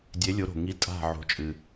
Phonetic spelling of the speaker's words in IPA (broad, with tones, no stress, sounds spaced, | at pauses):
dʲ e˨˦ lʲ o˨˦ ɾ o̤˩ ŋ i˨˦ tʼ a̤˧˩ ʕ o̤˨˦ t͡ʃʼ ɨ˩